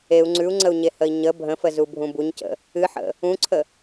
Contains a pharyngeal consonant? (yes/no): yes